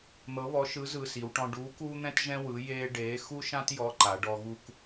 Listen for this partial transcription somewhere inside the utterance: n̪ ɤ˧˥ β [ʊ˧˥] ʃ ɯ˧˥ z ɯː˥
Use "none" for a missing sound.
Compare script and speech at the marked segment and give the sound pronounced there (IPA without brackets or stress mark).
ɔ˧˥